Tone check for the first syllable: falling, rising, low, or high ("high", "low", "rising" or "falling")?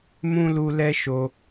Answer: high